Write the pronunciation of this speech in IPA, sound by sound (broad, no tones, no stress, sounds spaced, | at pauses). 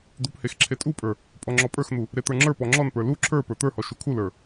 d̪ u p h e x ǁʰ e tʼ u pʼ ə˞ | pʼ ɔ ŋ͡ǁ ɔ pʼ ə˞ x n̪ u | ɾ e t̪ ə˞ ŋ͡ǁ ə˞ p ɔ ŋ͡ǁ ɔ n p ə˞ l u ǁʰ ə˞ p ə˞ t̪ ə˞ h ɔ ʃ u kʰ u l ə˞